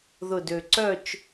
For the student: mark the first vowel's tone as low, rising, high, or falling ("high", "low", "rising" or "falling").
low